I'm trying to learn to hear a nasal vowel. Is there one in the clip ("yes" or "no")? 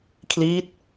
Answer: no